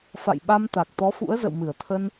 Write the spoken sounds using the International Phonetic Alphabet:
f a̰˧˨ j ɓ a˧ m t̪ a˨˩ k̚ t̪ ɔ˨˦ f ṵ˧˥ ə̯ z ə̰˧˨ w m ɨ˧˩ ə̯ t̪ʰ ə˧ n

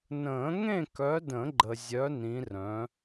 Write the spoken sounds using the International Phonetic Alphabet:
n ə̃ː˨˩˦ ŋ ẽ˥˨ k œ˨˦ d ə̃˨˩˦ ɡ͡ǃ ə˨ zʲ œ˨˦ n ĩ˨˦ r œ̃˨˦

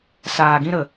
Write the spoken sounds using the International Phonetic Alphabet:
s aː˨ ɡ ĩ˦ ɾ ə˨

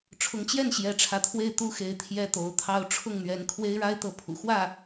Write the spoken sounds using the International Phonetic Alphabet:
ʈ͡ʂʰ ʊ˧˥ ŋ t͡ɕ j ɛ˥˩ n ɕ j ɛ˧˥ ʈ͡ʂʰ ä˧˥ t̪ʰ w e˥˩ ɪ̯ t̪ u˥ x e˧˥ ɪ̯ t̪ʰ j ɛ˥ t̪ o˧˥ ʊ̯ t̪ʰ ɑ˥ ʊ̯ ʈ͡ʂʰ ʊ˥˩ ŋ n̪ ɥ ɛ˧˥ n kʰ w e˥ ɪ̯ ɻ a˥ ɪ̯ t̪ ɤ˧˥ pʰ ṵ˨˩ x w ä˥˩

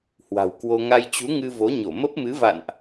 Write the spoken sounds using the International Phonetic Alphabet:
h w a̤˨˩ w k w o˧ ŋ a˧ j t͡ɕ u˨˦ ŋ ɨ˧ v o˨˦ ɲ o˧˩ m ə˦˥ p̚ m ɨ˨˦ v a̰˧˨ n ʔ

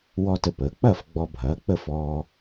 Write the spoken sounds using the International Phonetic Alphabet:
w ɔ˥ t ə˧ p əː˩˥ k͡p ɐ˥˩ f ɡ͡b ɔ˧ bʱ ɐː˩˥ k͡p ə˥˩ f ɔː˧

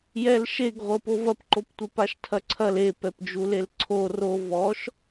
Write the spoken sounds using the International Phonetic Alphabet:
j ɛ l ʃ e ɡ ʁʷ ɤ p o v ɐ p ǃ o p tʷ e p a ʃ tʰ ɐ ǀʰ ɐ l e p ɛ p d͡ʒ u l e l ǀʰ o r o v ɔ ʃ

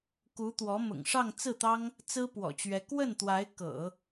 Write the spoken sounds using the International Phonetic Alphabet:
k u˧˥ t̪ w ɔ˧˥ m ʊ̰˨˩ ŋ ʂ ɑ˥˧ ŋ t͡s ɹ̩˥˩ t̪ ɑ˥ ŋ | t͡s ɹ̩˥ p w ɔ̰˨˩ t͡ɕ ɥ ɛ˧˥ k w ə˥˩ n t̪ w a˧˥ ɪ̯ k ɤ̰˨˩˦

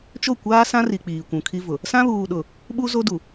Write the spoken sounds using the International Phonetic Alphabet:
t͡ʃ o˦˨ kʷ aː˦ s ã˦ r i˨ k͡p iː˨ kʷ ũ˨ kʰ i˦ v ʊ˨ | s ã˦ β uː˨ ɗ ʊ˨ | ɓ u˦ z o˦ d u˨

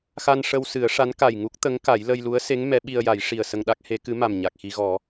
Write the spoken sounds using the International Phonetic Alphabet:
x a˧ n ʂ ə˧ w s ɨ˨˩˦ ə̯ ʂ a˧˥ n k a˨˩ j ŋ u˦˥ k̚ t̪ ə˧˥ ŋ k a˨˩˦ j l ə˧ j l u˧˥ ə̯ s e˧˥ ŋ m ɛ˧˥ ɓ i˧ ə̯ j a˨˩˦ j ʂ i˨˩ ə̯ s ə˧ ŋ ɗ a˦˥ k̚ h e˧˥ k ɨ˧˥ m a˨˩ m ɲ a˨˩ k̚ x i˧ ɣ ɔ˨˩˦

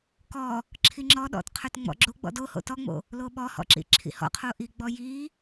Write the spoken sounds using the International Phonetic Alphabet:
k ɔ | ǁʰ i ŋ͡ǁ ɔ ɗ ɔ̰ t qʰ œ t ŋ͡m ɔ̰ ɡ͡ǁ o ɡ͡b ɔ̰ d o h o̰ t ɔ ŋ͡m o̰ | l o ɓ ɔ h ɔ̰ ǁ ḭ ǁʰ ḭ h ɔ̰ qʰ o ʔ i ɡ͡b ɔ j i

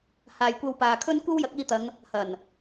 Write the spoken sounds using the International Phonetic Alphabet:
h aː˨ j kʷ ɐ˧ w p aː˨ kʰ ɵ˥ n kʷ ɐ˥ w j ɐ˨˥ k̚ iː˧ t̪ ɐ˨˧ ŋ | h ɐ˨˩ n

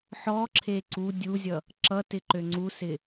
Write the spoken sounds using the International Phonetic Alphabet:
ħ ɔ ǁʰ e ǀ u dʲ u zʲ ʌ | ǁ ʌ t ɪ ǃ ø ŋ͡ǀ u s ɪ

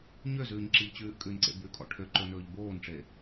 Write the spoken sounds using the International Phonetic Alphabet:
ɲ ø z ʉː ɲ ǁ i ʎ t͡ɕ ʉː ʔ kʼ ʉ n ǀ ḛ b ʉ kʼ ɔ̰ ʈʰ ø ǃ ɵ n ɵː ʎ b oː n ʈ͡ʂ e

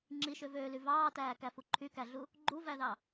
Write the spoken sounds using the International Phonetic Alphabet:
ŋ͡ǁ i ʃ ø v øː l y v ɑː t æː k æ f u ǃʰ y k æ ɮ u | ɡ͡ǃ u v æ ð ɑ

